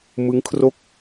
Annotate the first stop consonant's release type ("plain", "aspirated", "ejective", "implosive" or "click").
aspirated